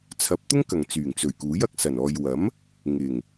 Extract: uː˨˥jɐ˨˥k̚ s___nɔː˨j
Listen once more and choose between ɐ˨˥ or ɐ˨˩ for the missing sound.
ɐ˨˩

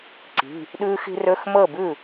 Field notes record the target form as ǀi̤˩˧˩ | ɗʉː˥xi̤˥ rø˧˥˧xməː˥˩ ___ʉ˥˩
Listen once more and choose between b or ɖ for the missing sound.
b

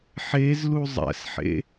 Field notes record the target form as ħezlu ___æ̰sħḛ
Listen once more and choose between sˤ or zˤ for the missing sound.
zˤ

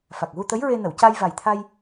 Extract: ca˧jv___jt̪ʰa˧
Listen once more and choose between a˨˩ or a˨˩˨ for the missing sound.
a˨˩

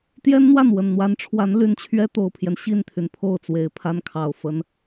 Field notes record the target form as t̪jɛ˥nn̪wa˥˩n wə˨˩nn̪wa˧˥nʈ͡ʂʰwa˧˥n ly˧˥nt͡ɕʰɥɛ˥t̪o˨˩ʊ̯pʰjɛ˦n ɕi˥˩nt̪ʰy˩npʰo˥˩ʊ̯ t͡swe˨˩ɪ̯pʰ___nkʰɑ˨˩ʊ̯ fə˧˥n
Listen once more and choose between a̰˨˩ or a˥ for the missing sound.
a˥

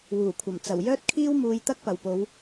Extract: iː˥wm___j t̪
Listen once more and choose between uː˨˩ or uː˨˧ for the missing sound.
uː˨˧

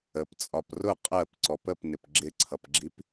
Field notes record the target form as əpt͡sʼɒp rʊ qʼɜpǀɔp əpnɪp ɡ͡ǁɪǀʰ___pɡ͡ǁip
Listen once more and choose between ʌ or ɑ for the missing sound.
ʌ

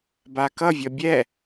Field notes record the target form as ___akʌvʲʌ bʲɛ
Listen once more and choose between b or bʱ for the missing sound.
b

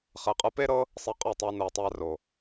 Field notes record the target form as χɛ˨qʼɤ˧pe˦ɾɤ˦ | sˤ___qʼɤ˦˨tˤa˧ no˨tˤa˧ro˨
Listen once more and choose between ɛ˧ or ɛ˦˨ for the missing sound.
ɛ˧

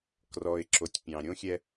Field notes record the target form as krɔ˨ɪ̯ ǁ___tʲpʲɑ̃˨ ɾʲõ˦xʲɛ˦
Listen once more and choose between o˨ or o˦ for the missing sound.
o˨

